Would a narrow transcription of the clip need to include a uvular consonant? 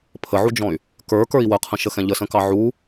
yes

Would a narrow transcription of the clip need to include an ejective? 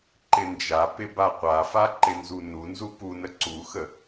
no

